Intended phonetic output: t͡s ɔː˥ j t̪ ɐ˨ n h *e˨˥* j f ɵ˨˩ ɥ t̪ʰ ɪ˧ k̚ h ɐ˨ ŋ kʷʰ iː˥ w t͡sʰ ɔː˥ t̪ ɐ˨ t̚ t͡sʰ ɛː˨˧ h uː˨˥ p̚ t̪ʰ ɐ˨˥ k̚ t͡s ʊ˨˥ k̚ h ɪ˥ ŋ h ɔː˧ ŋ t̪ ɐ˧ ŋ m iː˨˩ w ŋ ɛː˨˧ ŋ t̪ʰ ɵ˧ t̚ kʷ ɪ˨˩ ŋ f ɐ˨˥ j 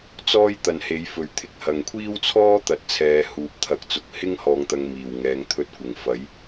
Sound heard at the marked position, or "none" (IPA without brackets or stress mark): e˨˥